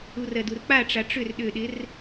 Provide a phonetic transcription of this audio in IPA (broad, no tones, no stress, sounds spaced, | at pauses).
u r ɜ d u r k͡p a ʈ͡ʂ a ʈ͡ʂ ʏ r ɗ ʏ ɗ ɪ r